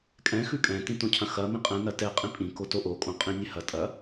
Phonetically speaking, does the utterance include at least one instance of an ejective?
yes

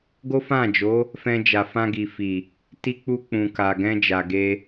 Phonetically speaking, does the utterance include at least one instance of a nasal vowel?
yes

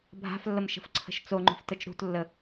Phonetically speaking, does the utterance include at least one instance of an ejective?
no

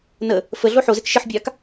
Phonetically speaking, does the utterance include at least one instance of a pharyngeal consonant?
yes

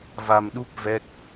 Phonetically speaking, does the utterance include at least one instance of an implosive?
yes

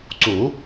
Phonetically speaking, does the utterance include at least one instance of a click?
yes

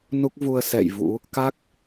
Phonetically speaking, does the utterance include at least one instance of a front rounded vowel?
no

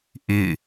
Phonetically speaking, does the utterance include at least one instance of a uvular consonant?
no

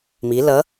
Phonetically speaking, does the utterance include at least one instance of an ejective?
no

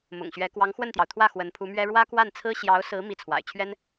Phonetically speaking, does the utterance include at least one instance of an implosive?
no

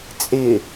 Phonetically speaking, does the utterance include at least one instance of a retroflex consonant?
no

